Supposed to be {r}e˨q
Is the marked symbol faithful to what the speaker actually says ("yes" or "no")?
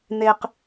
no